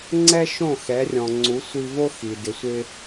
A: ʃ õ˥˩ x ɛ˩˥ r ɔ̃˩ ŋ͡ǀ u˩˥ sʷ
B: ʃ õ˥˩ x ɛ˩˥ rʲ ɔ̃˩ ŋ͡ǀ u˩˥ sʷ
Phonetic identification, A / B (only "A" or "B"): B